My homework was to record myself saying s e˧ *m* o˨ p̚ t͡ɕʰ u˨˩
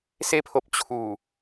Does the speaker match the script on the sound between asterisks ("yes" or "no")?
no